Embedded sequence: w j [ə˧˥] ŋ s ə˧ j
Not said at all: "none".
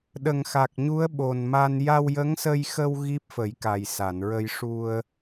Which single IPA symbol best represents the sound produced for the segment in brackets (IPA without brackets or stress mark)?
ə˧˥